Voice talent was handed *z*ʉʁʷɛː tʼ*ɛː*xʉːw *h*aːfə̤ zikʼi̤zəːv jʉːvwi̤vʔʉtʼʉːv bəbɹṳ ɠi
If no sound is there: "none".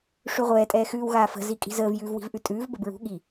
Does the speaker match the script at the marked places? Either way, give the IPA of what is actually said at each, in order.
ʂ, ɛː, ɣ

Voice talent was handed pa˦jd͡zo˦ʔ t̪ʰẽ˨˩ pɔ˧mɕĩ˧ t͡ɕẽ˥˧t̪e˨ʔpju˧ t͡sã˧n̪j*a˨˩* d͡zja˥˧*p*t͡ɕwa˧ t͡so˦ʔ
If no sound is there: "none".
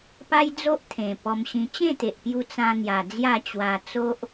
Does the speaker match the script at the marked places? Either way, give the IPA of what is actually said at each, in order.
a˨˩, none

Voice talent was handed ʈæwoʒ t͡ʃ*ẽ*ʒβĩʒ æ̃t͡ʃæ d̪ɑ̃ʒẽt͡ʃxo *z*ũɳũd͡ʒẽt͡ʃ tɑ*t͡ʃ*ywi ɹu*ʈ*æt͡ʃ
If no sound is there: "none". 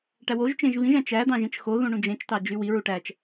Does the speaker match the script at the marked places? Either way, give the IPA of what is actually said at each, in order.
ẽ, ð, d͡ʒ, ʈ

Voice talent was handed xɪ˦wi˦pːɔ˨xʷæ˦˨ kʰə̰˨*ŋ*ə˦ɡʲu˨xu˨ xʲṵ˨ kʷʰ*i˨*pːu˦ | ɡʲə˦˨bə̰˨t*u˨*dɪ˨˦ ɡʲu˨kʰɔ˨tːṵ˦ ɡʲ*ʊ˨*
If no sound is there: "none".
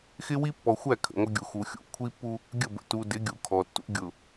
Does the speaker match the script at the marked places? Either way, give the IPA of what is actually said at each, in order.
ŋʷ, i˦, u˨, ʊ˨

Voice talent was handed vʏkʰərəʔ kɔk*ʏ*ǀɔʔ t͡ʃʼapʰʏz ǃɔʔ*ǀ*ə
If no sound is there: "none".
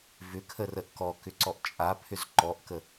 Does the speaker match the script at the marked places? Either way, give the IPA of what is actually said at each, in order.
ʏ, k

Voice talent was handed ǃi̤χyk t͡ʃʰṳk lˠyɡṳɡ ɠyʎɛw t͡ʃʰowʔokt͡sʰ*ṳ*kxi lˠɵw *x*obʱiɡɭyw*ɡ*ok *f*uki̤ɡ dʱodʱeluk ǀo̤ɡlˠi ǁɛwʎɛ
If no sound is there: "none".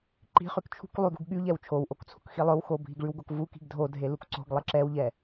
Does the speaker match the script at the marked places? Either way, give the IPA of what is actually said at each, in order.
ṳ, x, ɡ, v

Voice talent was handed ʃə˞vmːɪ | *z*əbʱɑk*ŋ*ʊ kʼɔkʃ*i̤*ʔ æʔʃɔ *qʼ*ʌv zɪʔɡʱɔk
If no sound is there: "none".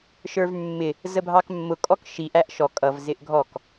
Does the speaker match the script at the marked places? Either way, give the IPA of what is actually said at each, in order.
z, mː, i, kʼ

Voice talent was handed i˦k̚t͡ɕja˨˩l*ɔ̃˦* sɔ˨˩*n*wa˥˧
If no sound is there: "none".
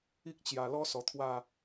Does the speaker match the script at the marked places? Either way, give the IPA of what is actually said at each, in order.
ɔ˦, t̪ʰ

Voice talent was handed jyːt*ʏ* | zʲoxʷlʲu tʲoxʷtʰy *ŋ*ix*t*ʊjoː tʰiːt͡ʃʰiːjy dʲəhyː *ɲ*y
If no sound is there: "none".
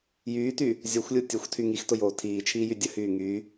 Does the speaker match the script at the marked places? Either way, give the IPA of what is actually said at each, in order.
y, ŋ, t, ŋ

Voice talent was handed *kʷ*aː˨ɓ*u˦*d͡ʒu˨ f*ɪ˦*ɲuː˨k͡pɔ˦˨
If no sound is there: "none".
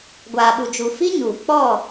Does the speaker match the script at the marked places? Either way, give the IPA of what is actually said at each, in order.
ɡʷ, u˨, i˦

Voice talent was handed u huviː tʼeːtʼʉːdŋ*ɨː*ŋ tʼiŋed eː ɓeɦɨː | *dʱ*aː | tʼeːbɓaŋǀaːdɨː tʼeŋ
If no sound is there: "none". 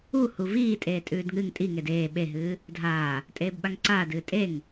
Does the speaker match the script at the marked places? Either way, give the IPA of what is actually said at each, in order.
ɨ, dʱ

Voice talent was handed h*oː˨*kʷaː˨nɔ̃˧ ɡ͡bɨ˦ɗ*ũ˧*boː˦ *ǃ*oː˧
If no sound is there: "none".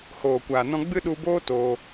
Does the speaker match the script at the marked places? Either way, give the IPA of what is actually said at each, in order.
oː˨, u˧, t

